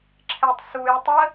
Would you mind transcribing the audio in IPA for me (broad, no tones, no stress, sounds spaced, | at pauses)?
ǁʰ ɛ tˤ s u j tˤ ə